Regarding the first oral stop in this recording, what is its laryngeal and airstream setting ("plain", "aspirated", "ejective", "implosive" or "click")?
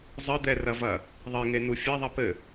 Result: plain